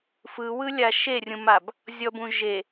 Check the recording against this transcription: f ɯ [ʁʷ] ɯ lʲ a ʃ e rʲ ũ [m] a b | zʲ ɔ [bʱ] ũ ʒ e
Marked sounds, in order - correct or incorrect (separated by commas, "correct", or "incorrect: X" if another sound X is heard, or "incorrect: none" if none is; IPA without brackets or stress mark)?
incorrect: w, correct, incorrect: b